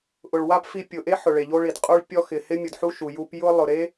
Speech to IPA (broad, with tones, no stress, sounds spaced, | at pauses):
ʔ ʊ˨ ɭ w a˦ p f i˧ pʲ ʊ˨ ʔ e˦ ħ ʊ˨ ɭ e˨ ʎ o˧ ɭ i˨ d qʼ u˧ ɭ pʲ ɔ˧ x ɪ˨ h ɪ˧ mʲ ʊ˨ d ħ u˧ ʃ u˨ j u˧ p j ʊ˧ lˠ ʊ˨ ɾ e˦